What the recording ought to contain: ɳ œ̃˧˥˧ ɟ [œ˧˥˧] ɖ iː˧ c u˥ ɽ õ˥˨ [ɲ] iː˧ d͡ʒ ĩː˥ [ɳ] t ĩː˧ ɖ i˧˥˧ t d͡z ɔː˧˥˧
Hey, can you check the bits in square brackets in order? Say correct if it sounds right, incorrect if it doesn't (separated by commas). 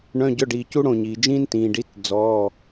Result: correct, correct, incorrect